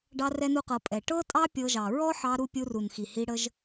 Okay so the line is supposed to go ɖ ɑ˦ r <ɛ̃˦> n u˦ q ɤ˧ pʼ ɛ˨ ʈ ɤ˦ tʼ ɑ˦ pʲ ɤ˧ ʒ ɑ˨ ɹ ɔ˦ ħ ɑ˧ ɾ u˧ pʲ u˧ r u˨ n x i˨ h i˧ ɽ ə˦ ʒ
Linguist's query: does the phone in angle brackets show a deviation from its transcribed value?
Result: yes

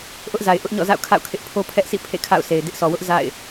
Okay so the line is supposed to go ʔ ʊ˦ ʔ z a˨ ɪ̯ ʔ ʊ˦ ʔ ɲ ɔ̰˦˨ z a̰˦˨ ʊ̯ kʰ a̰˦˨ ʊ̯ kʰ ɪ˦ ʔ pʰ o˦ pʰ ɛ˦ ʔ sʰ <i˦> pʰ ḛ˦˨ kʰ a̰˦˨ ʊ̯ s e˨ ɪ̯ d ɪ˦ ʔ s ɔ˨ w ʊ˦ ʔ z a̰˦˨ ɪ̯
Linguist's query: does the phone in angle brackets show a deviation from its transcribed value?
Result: yes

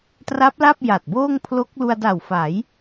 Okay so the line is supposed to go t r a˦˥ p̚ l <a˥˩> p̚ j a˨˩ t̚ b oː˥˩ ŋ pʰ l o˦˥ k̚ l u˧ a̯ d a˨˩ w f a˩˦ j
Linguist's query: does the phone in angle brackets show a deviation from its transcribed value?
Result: no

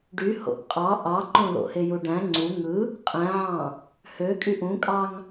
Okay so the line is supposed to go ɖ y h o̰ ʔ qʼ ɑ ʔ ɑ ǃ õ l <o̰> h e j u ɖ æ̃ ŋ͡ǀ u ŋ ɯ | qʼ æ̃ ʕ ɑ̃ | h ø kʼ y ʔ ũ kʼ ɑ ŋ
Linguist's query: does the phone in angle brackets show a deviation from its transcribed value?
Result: no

